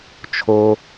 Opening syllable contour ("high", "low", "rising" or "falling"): low